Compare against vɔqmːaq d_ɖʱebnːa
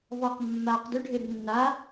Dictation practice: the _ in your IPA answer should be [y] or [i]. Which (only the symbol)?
y